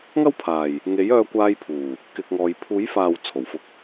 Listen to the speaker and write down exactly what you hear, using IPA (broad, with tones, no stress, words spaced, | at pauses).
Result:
ŋɐ˥wpʰaː˨j | ŋe˨˥jœː˧kʷaː˧jpʰuː˨˩ | kɪ˧k̚ŋɔː˨˧j pʰuː˨˥jfaː˨w t͡sʰo˨˩wfʊ˧k̚